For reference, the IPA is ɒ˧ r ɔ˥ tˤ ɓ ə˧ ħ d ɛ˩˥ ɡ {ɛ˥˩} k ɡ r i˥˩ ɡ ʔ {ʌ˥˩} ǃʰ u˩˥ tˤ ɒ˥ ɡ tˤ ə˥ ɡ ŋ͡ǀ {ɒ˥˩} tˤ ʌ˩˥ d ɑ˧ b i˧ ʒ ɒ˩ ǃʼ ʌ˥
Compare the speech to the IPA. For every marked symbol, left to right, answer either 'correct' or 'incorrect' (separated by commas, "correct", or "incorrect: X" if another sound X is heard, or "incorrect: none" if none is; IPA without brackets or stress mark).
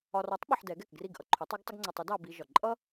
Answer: correct, incorrect: ʌ˧, incorrect: ɒ˧